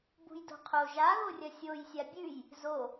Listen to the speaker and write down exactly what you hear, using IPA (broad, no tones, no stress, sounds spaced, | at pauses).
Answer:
b ṳ j d o̤ qʰ o ʒ a ɣ o rʲ ɐ sʲ o j sʲ a bʲ ʉ j | z o